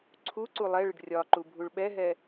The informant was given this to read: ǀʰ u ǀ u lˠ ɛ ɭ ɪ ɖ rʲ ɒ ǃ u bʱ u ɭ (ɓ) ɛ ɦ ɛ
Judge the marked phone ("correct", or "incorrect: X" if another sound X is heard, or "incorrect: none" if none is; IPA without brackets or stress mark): correct